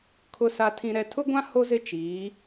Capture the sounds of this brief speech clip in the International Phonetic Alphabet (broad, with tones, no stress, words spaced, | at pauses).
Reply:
kʰʊ˨sa˨tʰĩ˨ ɾɛ˨tʰʊ˦ɡʷã˦ ho˦zɪ˦t͡ʃiː˨˦